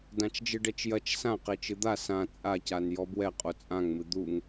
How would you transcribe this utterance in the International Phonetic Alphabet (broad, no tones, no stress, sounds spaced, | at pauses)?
d ã t͡ʃ d͡ʒ ɨ ɖ ɛ t͡ʃ j ɐ t͡ʃ s ã q e t͡ʃ ɨ d̪ a s ã t͡sʼ a c a n j ɔ b w ɛ qʼ o t͡sʼ ã ŋ m ɨ d̪ u ŋ